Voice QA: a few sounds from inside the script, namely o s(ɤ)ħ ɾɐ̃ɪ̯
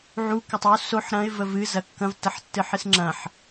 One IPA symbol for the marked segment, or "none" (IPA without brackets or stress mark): o